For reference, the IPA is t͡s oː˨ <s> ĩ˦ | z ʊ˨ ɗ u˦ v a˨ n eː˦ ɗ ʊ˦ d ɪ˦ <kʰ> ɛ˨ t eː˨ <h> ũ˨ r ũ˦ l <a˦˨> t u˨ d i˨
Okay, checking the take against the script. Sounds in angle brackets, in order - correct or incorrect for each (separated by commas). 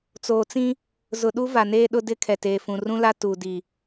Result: incorrect, correct, incorrect, incorrect